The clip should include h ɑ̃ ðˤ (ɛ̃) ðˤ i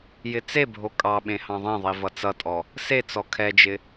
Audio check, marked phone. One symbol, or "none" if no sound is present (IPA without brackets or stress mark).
ẽ